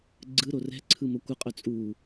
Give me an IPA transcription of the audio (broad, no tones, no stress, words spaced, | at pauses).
ɡ͡ǀɯɾo rɛ̤ǀʰɯmo kʷɪqʼœ t͡sʼu